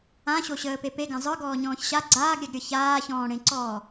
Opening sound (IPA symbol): ã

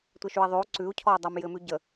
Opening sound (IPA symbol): tʷ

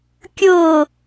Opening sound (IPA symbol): kʲ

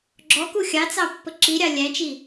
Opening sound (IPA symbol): ɡ͡ǁ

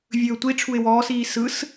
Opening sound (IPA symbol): vʲ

